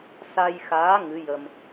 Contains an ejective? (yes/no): no